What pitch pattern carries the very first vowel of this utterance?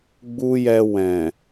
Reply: high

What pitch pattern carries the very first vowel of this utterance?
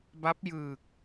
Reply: rising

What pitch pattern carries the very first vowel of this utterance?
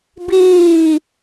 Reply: falling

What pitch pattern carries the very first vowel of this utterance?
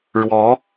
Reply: rising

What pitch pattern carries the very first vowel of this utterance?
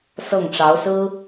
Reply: falling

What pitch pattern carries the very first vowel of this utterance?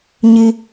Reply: low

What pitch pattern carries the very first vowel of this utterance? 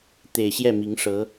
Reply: low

